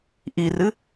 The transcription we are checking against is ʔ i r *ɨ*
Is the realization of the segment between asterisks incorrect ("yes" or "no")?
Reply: no